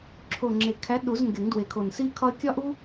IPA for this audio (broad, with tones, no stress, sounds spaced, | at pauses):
ǁʰ o˨˩ ŋ͡ǁ e˨˩ kʰ æ˨˥ ɗ u˨˩˦ z ŋ ɡ e˨˩˦ ŋ d w e˨˩ kʰ o˨˩ n s i˦ kʰ ɒ˦ ə̯ kʲ ɒ˦ ʔ u˦